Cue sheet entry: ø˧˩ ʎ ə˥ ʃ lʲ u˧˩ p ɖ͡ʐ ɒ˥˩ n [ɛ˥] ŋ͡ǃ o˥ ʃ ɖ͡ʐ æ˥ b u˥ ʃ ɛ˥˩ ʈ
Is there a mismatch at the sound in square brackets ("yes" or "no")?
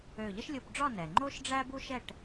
yes